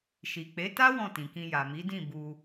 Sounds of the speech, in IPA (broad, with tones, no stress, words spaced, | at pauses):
ʃi˨k͡pe˨˦ta˦ wɔ̃˦˨tĩ˨kĩ˧ ja˨mi˨˦dĩ˦˨ bu˧